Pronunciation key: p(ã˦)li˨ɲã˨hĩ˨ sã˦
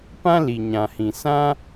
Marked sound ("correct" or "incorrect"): correct